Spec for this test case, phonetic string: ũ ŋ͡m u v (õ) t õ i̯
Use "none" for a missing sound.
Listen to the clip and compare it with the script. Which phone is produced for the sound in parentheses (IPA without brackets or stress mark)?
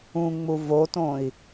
o